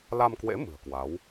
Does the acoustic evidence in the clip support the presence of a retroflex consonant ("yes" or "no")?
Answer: no